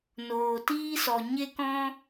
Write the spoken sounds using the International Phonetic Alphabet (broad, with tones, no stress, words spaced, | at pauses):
noː˨tiː˦sɔ˨ ɲe˦kɔ̃˦